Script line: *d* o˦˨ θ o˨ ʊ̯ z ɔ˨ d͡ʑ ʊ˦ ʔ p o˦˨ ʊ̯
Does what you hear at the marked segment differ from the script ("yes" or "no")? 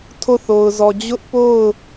yes